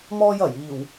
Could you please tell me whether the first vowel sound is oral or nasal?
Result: oral